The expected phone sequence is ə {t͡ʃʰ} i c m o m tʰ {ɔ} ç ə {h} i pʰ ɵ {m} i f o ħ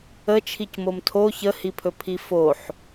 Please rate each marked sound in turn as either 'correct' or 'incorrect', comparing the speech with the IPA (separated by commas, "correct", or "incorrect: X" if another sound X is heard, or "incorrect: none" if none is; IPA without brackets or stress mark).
correct, incorrect: o, correct, incorrect: pʰ